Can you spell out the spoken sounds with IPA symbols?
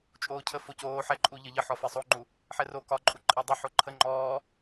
t͡ʃʼ oː cʰ ə f o c oː ħ ɛ ǃʼ u ʎ ə ʎ ə ħ ɔ f e sˤ o ŋ͡ǃ u | ħ ɛ r o k ɒ ǃʼ u ǃʼ e dˤ ə ħ o ǃʰ ə ŋ͡ǃ ɔː

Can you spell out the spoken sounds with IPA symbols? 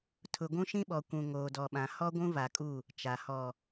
tʰ ʊ˨ ɡʷ ũ˦ ʃ ĩ˦ ɓ ɔ˨ kʷ ũ˨ ŋ oː˨ d ɔ˨ ɓ ã˨ h ɔ˦ ɡʷ ũ˦ v a˨ kʼ u˦˨ | t͡ʃ a˨ h ɔ˨

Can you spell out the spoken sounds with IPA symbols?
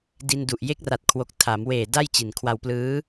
d i˧ n d u˨˩ ʔ j e˦˥ k̚ r a˨˩ t̚ kʰ w o˨˩ k̚ tʰ a˩˦ m w eː˨˩ d a˥˩ j t͡ɕ i˨˩ n kʰ w a˧ w p l ɯː˦˥

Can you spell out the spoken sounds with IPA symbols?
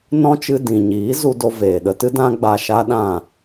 n ɔ̃˦ t͡ʃ ɨ˧ d ĩ˨ ɲ iː˨˦ z u˧ d o˧ v eː˨ ɗ ə˧ t ɨ˦ d ã˦ ɡ͡b a˧ ʃ a˦ ɗ ã˦˨

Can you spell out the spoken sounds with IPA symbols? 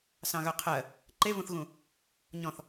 s ɑ̃ ɣ œ qʰ ɜ | ǃ e v ũ θ ɣ ũ | ɲ ɔ̃ θ

